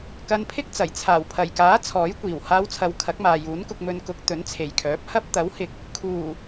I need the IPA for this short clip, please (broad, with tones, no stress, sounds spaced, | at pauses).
k ɐ˧ n pʰ ɪ˥ k̚ t͡s ɐ˨˩ j t͡sʰ aː˨˩ w pʰ ɐ˨˩ j k aː˨˥ t͡sʰ ɔː˨˥ j kʷ iː˨˩ w h aː˧ w t͡sʰ ɐ˨˧ w kʰ ɐ˨˥ k̚ m aː˨ j uː˨˥ n k ʊ˧ k̚ m ɵ˧ n k ʊ˨˥ k̚ t̪ ɵ˨˥ n t͡sʰ e˨ j kʰ œː˨˥ p̚ h ɐ˥ p̚ t̪ ɐ˨˥ w h ɪ˨ k̚ | kʰ uː˨˩